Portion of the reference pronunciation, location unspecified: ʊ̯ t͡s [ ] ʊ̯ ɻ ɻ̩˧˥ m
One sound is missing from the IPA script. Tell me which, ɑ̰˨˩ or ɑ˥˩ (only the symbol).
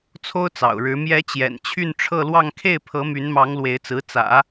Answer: ɑ̰˨˩